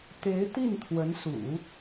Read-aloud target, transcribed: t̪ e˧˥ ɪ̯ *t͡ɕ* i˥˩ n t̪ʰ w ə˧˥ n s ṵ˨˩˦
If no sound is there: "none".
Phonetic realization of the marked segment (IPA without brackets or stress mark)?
t̪